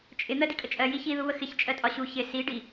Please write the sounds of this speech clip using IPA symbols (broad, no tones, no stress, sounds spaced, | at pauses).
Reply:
t͡ʃʼ ɪ n̪ ɜ d i kʼ ə t͡ʃʼ ɜ j i ç i ð u β ə x ɪ ç t͡ʃʼ ɜ tʼ ɒ ɕ u ç ɪ s i ɖ i